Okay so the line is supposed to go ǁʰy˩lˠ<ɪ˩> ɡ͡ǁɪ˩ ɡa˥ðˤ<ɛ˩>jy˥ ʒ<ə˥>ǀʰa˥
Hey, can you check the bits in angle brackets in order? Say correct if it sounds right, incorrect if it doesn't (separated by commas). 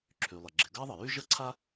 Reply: correct, incorrect, correct